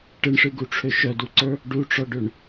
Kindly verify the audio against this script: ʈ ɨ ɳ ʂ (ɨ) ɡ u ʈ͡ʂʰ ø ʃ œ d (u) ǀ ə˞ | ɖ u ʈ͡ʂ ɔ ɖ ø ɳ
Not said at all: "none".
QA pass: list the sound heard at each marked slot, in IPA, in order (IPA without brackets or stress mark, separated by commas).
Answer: ɨ, u